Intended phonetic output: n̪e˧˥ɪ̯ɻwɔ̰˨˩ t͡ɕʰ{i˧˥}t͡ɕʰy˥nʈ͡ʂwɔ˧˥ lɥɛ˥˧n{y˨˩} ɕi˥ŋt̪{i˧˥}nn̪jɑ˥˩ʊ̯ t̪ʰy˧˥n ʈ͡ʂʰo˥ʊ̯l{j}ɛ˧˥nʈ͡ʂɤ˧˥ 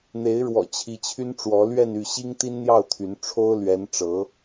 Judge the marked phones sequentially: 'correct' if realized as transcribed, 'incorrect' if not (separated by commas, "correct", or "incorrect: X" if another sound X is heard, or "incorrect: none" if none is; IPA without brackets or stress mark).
correct, incorrect: y˥˩, incorrect: i˥, incorrect: ɥ